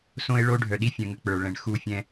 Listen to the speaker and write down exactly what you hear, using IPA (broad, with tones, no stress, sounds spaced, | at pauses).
s õ˦ e̯ ɭ o˦ ɖʱ œ˨ ɗ i˦ fʲ œ̃˨ ŋ ə˨ k͡p ə˞˨ ɭ ɛ̃˨ ɳ x u˦˨ fʲ ɛ̃˦